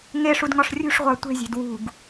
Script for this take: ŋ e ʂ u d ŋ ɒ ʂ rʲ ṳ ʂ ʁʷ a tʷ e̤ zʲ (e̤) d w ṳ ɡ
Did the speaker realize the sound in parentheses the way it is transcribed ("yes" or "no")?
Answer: yes